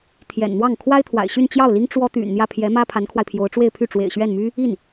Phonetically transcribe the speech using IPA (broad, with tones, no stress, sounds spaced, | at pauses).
t̪ʰ j ɛ̰˨˩ n n̪ w ɑ˥˩ ŋ kʰ w a˥ ɪ̯ t̪ʰ w a̰˨˩ ɪ̯ ɕ y˥˧ n t͡ɕ j ɑ˥˩ ʊ̯ l i˥ ŋ ʈ͡ʂ w ɔ˥ t̪ y̰˨˩ n n̪ j ä˥˩ pʰ j ɛ˧˥ m ä˥ pʰ a˧˥ n kʰ w a˧ ɪ̯ pʰ j o˧˥ ʊ̯ ʈ͡ʂ w e˥˧ ɪ̯ pʰ y˥˩ ʈ͡ʂ w ḛ˨˩ ɪ̯ ɕ ɥ ɛ˥˩ n m y˥ | i˥˩ n